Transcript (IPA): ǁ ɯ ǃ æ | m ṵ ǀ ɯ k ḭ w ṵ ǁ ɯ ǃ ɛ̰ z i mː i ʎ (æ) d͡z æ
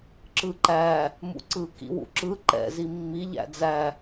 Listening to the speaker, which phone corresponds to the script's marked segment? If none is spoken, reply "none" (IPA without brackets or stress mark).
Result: æ̰